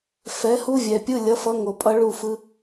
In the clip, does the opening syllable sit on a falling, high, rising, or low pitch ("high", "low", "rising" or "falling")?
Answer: rising